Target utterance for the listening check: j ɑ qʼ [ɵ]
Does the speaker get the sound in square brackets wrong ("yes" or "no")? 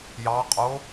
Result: yes